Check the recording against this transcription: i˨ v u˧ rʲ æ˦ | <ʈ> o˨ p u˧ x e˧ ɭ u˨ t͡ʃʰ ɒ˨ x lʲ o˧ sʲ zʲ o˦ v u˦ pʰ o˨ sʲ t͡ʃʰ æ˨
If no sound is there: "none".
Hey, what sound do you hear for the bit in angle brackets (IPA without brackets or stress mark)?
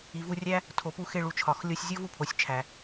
tʰ